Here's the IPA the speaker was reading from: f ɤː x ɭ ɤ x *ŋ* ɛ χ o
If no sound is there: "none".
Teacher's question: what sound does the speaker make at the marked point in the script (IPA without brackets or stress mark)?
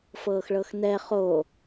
n